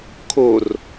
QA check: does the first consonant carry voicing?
no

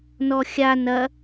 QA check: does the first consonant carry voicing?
yes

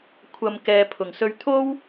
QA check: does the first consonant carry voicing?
no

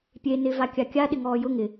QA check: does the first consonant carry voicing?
no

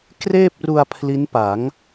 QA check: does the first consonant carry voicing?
no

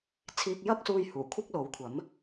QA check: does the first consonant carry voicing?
no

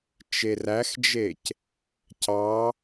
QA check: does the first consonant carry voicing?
no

